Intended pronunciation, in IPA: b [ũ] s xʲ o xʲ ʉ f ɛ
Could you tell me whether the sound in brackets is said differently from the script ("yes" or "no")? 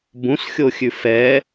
no